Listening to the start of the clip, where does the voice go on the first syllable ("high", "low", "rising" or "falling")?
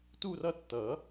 falling